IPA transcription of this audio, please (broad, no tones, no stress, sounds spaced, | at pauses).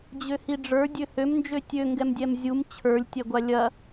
d͡ʑ ø h i ɖ͡ʐ ə˞ dʲ ø h ø m n d͡ʒ ø tʲ ø ŋ ɡ ɛ m dʲ ɛ m zʲ u m t͡ɕʰ ə˞ lʲ tʲ ɛ ɡʷ a lʲ ɐ